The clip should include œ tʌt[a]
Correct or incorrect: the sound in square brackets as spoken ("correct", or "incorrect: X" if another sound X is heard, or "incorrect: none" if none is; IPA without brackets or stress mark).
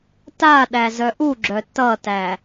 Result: incorrect: æ